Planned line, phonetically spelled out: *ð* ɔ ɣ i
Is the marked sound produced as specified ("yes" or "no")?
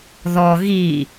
yes